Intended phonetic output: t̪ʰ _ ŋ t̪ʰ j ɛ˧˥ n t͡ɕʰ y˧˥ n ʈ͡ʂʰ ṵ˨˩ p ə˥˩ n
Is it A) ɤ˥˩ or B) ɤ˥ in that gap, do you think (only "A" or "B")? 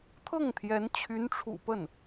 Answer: A